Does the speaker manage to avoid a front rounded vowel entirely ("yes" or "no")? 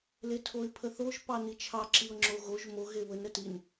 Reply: yes